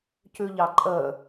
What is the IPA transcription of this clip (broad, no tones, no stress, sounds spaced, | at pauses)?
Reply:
c ʉ ʎ ɑ ǃʼ ə